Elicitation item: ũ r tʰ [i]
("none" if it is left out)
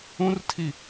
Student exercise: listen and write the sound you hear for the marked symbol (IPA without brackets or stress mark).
i